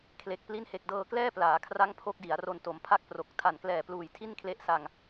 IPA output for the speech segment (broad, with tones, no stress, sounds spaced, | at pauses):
kʰ l e˨˩ k̚ p l i˦˥ n h e˨˩ k̚ d ɤː˧ k l ɛː˥˩ p l aː˩˦ kʰ r a˦˥ ŋ pʰ o˦˥ k̚ d i˩˦ a̯ r o˧ n t o˩˦ m pʰ a˦˥ k̚ p r o˨˩ k̚ tʰ a˨˩ n k l ɛː˨˩ p l uː˨˩ j tʰ i˥˩ n kʰ l e˦˥ ʔ s a˧ ŋ